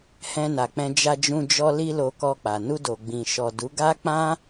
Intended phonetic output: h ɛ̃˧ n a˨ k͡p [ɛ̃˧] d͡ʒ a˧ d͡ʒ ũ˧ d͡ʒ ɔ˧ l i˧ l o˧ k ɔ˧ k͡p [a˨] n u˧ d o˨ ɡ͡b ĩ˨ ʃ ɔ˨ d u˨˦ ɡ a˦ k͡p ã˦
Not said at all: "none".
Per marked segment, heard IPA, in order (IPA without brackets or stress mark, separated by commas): ɛ̃˧, a˨